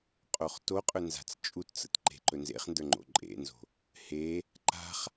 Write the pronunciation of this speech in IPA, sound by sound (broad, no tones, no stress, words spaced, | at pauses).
qʼoχtoqʼɵ nza̤t͡st͡ʃʼutt͡sə̰t ǃe̤ǃɵnzḛχndə˞ ŋ͡ǃo̰ǃʼḛnzo̤ | he | ǃa̤χ